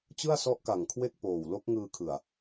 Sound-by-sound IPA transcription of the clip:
t͡ɕ ɯ˥˩ a̯ s ɔ˦˥ ʔ k a˨˩ ŋ kʰ w e˥˩ k̚ p oː˨˩ w l o˦˥ k̚ ŋ ɯː˧ kʰ ɯ˨˩ a̯

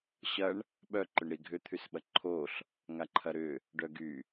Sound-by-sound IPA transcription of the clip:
ɕ ɐ ɳ | ɓ œ ǃ ʏ ɳ ɾ i ɡʱ ʏ t̪ʰ y s ɓ ɐ ǃʰ o ɬ | ŋ a ǃʰ ɐ ɾ ʏ | ɖ œ ɡ y

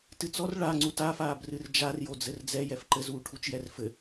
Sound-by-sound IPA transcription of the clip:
t ɨ t͡s ɔ r ɭ a ŋ͡ǀ u t a f aː b r ɨ r d͡ʒ a r j o d͡z ɘ r d͡z ɛ j ɛ f ǃ ɘ z uː ʈʰ u t͡ʃ j ɛ r f ɘ

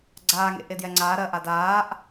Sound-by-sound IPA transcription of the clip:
ɡ͡ǀ aː ŋ ḛ ʔ e d j ɛ ŋ͡ǀ aː ɾ ɜ ʔ a d aː ʔ

